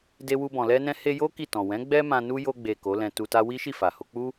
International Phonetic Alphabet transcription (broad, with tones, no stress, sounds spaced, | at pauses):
d e˧ w u˧ b ɔ̃˨ l ɛ˧ n ɛ̃˧ h e˧ j o˦ k i˦˨ t ɔ̃˨ w ɛ̃˨˦ ɡ͡b ɛ˦ m ã˧ n u˦ j o˧ ɡ͡b e˨ k o˨˦ l ɛ̃˧ t u˧ t a˦ w i˦ ʃ i˦˨ f a˨ h o˧ k͡p u˦